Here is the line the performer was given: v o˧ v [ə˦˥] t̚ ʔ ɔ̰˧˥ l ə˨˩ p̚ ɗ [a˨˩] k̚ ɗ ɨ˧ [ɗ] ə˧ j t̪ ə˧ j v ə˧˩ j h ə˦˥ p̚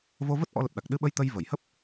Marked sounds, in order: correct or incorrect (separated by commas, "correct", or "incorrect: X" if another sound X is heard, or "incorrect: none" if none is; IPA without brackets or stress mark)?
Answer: correct, correct, incorrect: ɓ